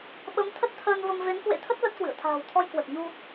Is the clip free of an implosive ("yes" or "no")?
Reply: no